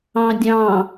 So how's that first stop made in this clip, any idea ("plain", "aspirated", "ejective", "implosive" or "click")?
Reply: plain